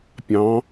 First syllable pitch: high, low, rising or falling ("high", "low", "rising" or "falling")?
rising